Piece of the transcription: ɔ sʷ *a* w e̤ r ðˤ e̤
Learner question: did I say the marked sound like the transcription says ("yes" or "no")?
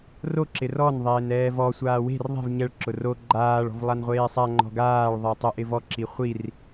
no